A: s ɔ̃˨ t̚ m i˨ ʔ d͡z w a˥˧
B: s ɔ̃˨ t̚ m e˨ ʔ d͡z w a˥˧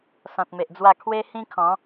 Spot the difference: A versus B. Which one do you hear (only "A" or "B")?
B